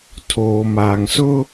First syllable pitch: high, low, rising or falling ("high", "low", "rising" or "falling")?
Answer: low